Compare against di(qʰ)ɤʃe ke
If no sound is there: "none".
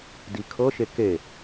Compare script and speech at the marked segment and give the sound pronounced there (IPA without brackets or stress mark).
kʰ